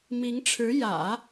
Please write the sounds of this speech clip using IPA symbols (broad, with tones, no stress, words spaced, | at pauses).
mi˧˥ŋʈ͡ʂʰɻ̩˧˥ jä̰˨˩˦